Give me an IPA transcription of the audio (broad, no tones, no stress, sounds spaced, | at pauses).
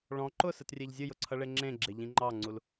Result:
ɭ ɔ̃ ǃ ʊ s ɨ t rʲ e ʎ zʲ ɨ j ʊ ǀʰ ʌ ɭ e ŋ͡ǁ ẽ ɡ͡ǁ e ʎ ĩ ŋ͡ǃ ɑ ŋ͡ǀ u l